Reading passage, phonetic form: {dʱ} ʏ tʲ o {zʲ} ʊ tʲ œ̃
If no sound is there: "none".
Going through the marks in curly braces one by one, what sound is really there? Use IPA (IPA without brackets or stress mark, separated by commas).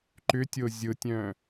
ǃ, zʲ